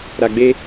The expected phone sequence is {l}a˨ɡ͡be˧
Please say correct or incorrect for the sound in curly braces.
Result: incorrect